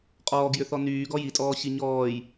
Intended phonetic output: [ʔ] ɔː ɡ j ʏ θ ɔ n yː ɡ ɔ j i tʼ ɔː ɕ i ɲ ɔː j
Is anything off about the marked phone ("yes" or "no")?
yes